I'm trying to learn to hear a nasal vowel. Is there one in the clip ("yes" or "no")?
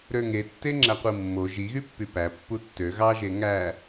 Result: no